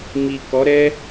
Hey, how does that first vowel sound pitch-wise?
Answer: low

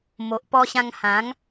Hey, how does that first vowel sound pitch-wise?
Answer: low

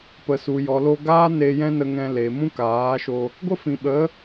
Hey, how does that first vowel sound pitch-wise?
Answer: low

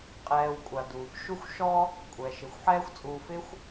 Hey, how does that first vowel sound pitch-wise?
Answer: low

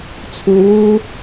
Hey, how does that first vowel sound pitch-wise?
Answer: low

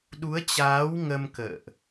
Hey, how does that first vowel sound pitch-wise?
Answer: rising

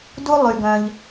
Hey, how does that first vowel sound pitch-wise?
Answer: high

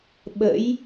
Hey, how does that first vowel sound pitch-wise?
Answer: rising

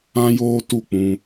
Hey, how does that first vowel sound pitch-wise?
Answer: high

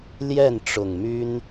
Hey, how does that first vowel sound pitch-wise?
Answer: falling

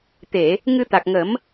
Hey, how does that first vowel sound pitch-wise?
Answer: low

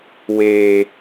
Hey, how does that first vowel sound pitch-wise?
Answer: low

